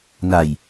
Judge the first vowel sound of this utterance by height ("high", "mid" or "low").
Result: low